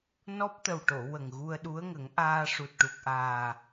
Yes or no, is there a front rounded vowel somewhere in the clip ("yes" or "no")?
no